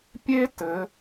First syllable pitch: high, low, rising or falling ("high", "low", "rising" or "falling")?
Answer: high